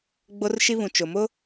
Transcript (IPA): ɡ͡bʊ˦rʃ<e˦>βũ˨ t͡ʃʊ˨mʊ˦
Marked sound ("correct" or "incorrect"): incorrect